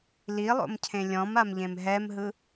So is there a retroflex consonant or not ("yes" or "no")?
no